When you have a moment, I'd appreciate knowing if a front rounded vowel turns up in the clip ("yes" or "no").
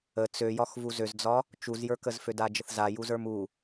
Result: yes